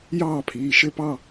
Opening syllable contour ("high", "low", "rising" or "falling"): falling